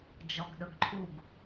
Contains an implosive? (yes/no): yes